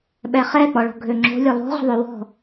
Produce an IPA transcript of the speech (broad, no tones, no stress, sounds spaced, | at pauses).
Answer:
ɓ ɛ χ ɛ k͡p ɔ ɭ ɔ̤ ɡʱ ø ŋ͡ǁ o̤ lʲ œ lˠ o̤ ʁ ə̤ ðˤ ø w ɔ̤